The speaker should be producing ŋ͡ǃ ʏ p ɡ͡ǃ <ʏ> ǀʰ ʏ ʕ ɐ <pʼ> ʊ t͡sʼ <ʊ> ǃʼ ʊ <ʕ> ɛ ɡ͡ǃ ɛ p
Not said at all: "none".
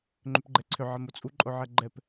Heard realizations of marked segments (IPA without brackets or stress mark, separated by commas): ɛ, m, u, ʕ